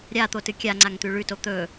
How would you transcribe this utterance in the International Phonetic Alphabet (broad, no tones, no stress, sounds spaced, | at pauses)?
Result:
ɾʲ a t̪ o t ɨ kʲ a ŋ͡ǀ a ŋ t̪ ʉ ɭ ʉ t o t̪ ɵ